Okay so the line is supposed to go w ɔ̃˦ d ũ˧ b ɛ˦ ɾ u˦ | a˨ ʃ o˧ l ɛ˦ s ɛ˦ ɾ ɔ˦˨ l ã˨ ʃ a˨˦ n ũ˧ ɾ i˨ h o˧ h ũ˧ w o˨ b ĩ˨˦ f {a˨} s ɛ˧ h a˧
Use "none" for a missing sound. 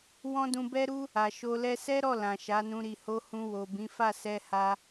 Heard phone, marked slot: a˦˨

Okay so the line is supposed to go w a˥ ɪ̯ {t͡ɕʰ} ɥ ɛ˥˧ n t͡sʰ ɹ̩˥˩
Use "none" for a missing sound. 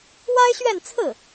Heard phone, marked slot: ɕ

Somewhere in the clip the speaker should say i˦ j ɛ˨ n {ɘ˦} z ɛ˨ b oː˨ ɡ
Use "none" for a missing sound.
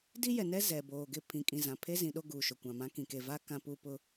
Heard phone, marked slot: ɛ˦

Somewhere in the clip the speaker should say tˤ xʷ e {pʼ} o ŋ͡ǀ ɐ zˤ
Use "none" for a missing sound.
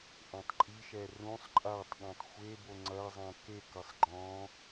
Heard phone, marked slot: b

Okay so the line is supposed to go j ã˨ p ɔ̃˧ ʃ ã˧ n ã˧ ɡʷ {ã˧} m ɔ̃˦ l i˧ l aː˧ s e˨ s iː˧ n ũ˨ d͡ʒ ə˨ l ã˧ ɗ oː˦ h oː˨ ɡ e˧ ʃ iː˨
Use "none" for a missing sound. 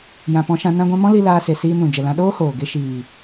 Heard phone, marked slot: ã˧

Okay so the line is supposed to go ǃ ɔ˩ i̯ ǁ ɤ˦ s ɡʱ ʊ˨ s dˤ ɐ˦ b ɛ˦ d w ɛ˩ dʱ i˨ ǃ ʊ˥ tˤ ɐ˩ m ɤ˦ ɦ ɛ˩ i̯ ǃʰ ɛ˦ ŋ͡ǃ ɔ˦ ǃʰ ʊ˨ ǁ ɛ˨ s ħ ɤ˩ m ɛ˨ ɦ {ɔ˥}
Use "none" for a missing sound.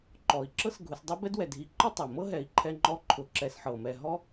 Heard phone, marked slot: ɔ˥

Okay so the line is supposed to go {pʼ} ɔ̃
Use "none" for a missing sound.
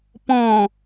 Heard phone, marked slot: p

